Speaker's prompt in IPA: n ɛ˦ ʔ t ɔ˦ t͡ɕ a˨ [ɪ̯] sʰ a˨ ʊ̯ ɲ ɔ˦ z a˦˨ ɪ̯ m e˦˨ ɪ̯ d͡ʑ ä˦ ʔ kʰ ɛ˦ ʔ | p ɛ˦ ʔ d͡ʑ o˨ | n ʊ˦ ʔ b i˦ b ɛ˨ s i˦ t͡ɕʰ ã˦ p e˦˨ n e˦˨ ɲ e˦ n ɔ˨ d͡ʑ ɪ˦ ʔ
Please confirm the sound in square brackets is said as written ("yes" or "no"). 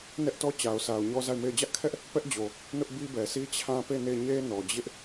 no